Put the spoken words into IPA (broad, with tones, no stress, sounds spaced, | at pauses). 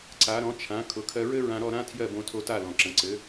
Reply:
ǀ a˩˥ ɾ ɔ̃˩˥ t͡ʃʰ ã˩˥ kʰ ʊ˩˥ kʰ ɜ˧ ɹ ɘ˥ ɹ ã˧ ɾ ɔ˥˩ ɾ ã˥ tʰ j ɜ˥˩ b õ˧ tʰ o˧ t a˥˩ l ɔ̃˩ ǁ ə̃˩ ǀ ɘ˩˥